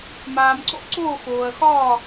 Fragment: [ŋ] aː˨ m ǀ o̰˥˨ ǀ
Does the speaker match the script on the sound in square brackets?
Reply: no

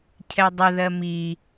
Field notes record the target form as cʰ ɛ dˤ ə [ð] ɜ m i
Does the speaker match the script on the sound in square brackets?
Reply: yes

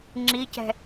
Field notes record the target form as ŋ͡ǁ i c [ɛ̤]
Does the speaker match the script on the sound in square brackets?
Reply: yes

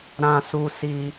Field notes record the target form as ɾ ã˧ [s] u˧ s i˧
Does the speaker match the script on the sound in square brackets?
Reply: yes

